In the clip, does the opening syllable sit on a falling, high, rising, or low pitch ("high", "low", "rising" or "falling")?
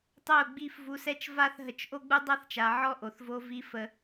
falling